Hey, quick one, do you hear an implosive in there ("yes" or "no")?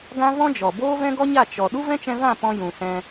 yes